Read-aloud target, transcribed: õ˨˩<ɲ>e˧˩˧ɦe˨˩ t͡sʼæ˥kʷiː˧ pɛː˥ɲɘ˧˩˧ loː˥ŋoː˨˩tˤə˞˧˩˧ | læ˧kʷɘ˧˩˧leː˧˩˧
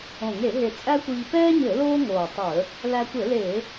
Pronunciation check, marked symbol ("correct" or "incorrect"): incorrect